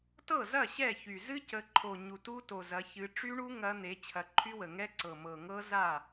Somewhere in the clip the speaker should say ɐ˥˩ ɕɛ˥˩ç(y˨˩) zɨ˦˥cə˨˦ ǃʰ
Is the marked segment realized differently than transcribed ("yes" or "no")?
no